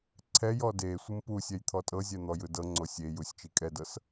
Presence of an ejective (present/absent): present